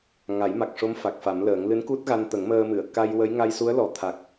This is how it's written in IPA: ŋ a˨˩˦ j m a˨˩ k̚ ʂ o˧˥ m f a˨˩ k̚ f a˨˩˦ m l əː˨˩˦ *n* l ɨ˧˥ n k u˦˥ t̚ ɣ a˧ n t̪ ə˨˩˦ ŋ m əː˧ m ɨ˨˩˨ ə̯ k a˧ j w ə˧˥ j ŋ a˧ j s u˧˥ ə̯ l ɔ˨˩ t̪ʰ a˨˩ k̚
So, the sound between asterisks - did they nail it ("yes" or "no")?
no